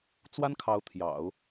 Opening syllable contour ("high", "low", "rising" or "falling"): high